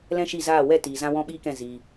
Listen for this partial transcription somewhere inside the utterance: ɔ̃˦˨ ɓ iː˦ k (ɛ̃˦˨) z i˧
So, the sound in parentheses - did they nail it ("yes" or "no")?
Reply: yes